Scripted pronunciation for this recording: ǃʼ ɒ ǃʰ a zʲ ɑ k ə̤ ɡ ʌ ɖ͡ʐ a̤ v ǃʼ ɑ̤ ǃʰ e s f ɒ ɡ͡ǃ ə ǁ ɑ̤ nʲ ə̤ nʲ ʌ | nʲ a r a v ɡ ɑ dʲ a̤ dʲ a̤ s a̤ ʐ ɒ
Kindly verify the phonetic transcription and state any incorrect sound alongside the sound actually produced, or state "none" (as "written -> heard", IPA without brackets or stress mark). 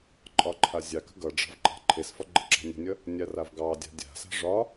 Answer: none